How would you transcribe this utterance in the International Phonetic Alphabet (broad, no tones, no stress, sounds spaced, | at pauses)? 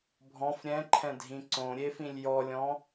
bʱ ɔ̃ f ɾʲ ɛ̃ ǃʰ ɛ̃ dʱ ĩ ǀ õ ɾʲ e f ĩ lʲ j ɔ lʲ ɔ̃